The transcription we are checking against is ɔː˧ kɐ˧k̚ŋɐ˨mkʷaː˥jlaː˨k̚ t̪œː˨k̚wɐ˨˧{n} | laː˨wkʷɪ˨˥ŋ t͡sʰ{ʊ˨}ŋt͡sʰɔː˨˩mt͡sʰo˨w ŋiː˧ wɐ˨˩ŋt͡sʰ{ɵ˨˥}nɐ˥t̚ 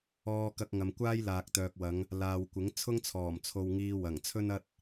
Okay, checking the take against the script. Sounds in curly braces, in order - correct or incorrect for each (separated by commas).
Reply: incorrect, incorrect, incorrect